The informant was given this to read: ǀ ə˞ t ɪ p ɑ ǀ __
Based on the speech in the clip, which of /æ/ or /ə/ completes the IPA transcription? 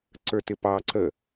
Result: ə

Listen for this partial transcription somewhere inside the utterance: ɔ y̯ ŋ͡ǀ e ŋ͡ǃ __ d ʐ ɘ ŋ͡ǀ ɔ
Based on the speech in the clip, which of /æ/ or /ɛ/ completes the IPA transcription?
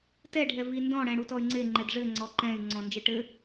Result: ɛ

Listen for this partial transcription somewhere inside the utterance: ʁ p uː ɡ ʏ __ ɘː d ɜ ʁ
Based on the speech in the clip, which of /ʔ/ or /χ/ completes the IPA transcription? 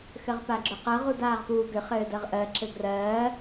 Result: χ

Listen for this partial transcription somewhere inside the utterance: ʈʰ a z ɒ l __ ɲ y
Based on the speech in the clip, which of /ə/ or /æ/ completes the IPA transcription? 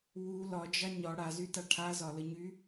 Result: ə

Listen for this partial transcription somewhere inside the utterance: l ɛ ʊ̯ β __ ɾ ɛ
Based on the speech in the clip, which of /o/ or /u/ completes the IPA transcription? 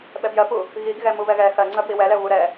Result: u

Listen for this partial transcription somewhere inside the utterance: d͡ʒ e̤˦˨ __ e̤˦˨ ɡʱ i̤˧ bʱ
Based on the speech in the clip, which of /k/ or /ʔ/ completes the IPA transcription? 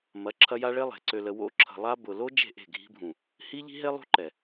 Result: ʔ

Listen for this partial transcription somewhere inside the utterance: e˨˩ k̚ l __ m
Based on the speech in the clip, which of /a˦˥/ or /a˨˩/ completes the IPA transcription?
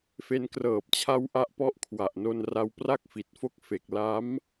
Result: a˦˥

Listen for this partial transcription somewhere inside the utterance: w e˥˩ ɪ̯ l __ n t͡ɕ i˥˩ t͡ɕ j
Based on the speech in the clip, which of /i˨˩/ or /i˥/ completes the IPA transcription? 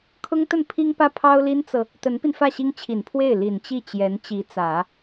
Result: i˨˩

